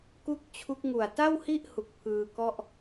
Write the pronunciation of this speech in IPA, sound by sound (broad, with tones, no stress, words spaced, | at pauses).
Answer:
ku˥˩k̚t͡ɕʰu˦˥k̚ ŋu˨˩a̯ta˥˩whi˥˩ʔhu˨˩k̚ pʰɯː˧kɔ˥˩ʔ